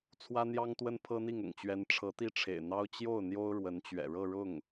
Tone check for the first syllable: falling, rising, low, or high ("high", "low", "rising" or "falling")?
high